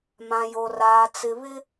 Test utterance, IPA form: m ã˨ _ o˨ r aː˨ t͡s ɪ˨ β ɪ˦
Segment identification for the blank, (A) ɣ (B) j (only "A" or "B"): B